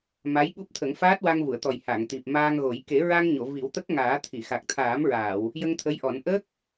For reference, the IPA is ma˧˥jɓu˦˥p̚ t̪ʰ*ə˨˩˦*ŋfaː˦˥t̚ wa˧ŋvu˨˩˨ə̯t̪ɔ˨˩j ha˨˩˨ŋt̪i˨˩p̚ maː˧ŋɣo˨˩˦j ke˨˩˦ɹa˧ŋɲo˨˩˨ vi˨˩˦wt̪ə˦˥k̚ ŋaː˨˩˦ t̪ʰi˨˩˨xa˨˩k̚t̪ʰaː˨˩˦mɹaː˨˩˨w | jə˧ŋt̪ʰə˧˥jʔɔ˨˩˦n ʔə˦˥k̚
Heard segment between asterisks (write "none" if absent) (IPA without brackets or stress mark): ə˨˩˦